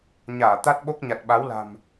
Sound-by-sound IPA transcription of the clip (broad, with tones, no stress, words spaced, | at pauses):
ɲaː˧˩t̪a˦˥t̚ɓo˦˥k̚ ɲa˨˩t̚ɓa˨˦wla̤˨˩m